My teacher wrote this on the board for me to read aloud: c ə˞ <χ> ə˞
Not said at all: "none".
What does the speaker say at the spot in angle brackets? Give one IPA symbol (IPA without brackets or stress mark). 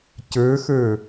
x